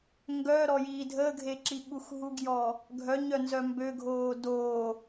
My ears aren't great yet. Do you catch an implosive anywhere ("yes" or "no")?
yes